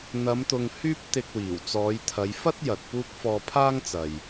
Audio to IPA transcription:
n̪ɐ˨˧mt̪ʊ˨ŋ hyː˥p̚t̪ɪ˧k̚wiː˨˩w t͡sɔː˨˧jt̪ʰɐ˨˧j fɐ˥t̚ jɐ˨t̚puː˥k̚ fɔː˧pʰaː˥ŋ t͡sɐ˨j

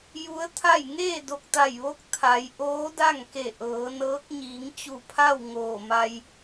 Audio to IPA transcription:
ju˧˥ə̯t̪ʰa˥˨j ŋeː˥˨do˧˩k̚ t̪a˧˩jʋo˧˥k̚ t̪ʰa˩˧j ʔoː˧˥da˥˨ŋke˧˩ ʔɤː˩˧nɤː˧˥k̚ ɲiː˩˧ŋt͡ɕu˧˩pʰa˥˨w ŋoː˧˩ma˧j

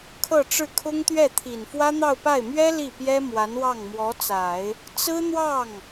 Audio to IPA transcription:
kʰɤ˥˧ʈ͡ʂɻ̩˥˩kʰʊ˥ŋt̪ɥɛ˥˩ t̪ʰi˨˩nfwä˥n̪ɑ˥˧ʊ̯pa˥˩ɪ̯ mɥɛ˥ li˥˩pjɛ˥ mwa˧˥nwɑ˥˩ŋmwɔ˧˥t͡sa˨˩˦ɪ̯ | t͡sɹ̩˥n̪wɑ˥˩ŋ

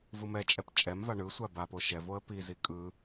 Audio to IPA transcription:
vɯmɛt͡ʃʼɛp t͡ʃʼɛmva ɳɯ sʷabapo ʃɛvoə̯ pizi kʼɯ

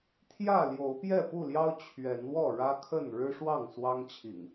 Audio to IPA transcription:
t̪ʰjä˥˨ ljo˨˦ʊ̯pjɛ˥˨pu˥˨ljɑ˦ʊ̯ t͡ɕʰɥɛ˨˦nwɔ˥˨ ɻä˦kʰə˥˨n ɻɻ̩˦ʂwɑ˥˨ŋ swɑ˦ŋt͡ɕʰḭ˨˩ŋ

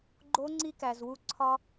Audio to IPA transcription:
ɡ͡ǃo˧˥ŋ͡ǀi˧kæ˩z wu˧ǀʰɒ˥

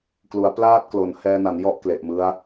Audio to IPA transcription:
klu˩˦a̯plaː˥˩t̚klo˩˦n hɛː˧na˩˦n jɔ˥˩ʔ kle˨˩ʔmɯ˦˥a̯

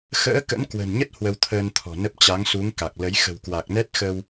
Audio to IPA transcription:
xə̰ː˧˥kə̰˧˥nkwə̤˨˩nɲə˦˥t̚ hwə˧wt̪ʰəː˧nt̪ʰɔ̤˨˩nə˦˥p̚ t͡ɕa˨˦ŋsu˨˦ŋ ka˨˩k̚lə˨˦j xə̤˨˩wkwa˨˩k̚nɛ˦˥t̚xə˧w

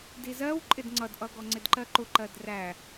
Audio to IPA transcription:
dizɜw ǃʼɪdŋ͡ǀʌdʔʌɡɔ ŋ͡ǀɪdǃɜǃʊ ǃɜdræ

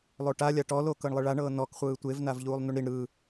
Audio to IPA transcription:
lˠoʈa lʲaʈɔ lokɤɳlˠɯɭa ɳɤːnɔk χʷɯːtʷev navʎuːlˠnuɳɾiɳ ɾɯ

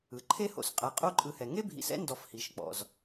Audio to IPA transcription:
ɯ˩ǃʰe˥ho̰˨sqʼa˨ qʼo˦ǃʼɯ˨hɛ˩ ŋe˥bʱḭ˨sɛ̰˥ ndɔ˨f hi˩ʃk͡pɔ̰˩z

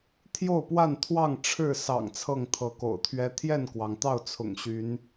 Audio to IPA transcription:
t̪ʰjo˥˨ʊ̯pwa˥˨nt̪ʰwɑ˥˨ŋ ʈ͡ʂʰɻ̩˥˨sɑ̰˨˩ŋ t͡sʰɤ˥˨ŋt̪ʰɤ˨˦ko̰˨˩ʊ̯t̪ʰɥɛ˦ t̪ʰjɛ˥˨nkwɑ˩ŋt̪ɑ˥˨ʊ̯ t͡sʰʊ̰˨˩ŋɕy˨˦n

